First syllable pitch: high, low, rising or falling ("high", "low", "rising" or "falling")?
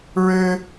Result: high